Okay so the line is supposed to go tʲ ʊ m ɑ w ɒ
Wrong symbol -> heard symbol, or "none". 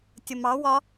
none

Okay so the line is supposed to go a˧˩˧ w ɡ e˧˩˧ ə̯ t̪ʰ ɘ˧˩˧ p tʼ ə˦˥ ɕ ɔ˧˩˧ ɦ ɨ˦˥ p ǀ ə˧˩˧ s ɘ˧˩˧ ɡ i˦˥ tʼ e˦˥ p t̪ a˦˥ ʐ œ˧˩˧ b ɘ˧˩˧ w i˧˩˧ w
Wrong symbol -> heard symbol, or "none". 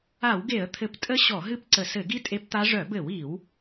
none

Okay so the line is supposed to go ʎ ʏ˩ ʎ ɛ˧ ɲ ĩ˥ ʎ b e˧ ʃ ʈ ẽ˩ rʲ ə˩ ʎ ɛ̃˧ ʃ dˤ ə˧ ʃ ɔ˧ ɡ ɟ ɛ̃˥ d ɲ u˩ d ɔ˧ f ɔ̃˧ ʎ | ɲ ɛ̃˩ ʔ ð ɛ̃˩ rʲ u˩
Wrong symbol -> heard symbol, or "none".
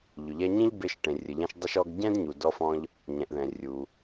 none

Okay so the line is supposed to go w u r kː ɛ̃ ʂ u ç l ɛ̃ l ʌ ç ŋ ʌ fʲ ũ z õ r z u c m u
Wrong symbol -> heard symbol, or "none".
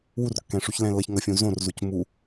none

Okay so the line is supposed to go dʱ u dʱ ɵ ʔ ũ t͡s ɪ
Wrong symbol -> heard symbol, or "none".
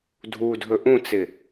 none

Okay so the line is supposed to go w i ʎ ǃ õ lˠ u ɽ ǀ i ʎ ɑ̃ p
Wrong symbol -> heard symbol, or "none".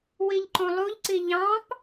ɽ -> ʎ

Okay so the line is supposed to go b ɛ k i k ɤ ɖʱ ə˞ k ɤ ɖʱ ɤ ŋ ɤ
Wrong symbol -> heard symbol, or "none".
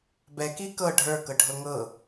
none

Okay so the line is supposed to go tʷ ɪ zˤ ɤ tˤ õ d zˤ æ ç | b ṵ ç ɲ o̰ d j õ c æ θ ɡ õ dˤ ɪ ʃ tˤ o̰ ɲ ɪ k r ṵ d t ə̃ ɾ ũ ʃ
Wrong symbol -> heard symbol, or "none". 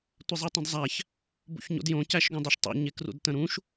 θ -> ʃ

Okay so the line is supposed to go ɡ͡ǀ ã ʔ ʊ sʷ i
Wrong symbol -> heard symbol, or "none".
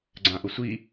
none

